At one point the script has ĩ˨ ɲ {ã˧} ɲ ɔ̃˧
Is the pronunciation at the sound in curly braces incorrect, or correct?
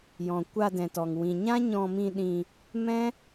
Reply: incorrect